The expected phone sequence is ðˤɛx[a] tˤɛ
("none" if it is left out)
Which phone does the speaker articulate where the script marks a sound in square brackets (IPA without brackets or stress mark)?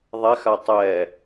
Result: a